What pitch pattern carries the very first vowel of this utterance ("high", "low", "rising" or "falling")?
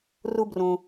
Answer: high